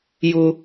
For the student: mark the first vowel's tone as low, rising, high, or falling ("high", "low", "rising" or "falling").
high